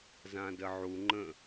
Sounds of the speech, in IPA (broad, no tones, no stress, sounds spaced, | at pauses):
z ã d ə ʕ u ŋ͡ǃ ə̃